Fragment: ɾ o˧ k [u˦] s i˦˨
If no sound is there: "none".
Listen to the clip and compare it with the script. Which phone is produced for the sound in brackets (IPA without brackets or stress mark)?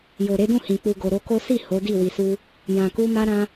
o˦